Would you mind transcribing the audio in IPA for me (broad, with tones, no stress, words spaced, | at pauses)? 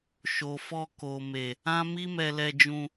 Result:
ʃo˨fɔ˧ ko˨me˨ | ã˦ mi˦mɛ˧lɛ˧ d͡ʒũ˧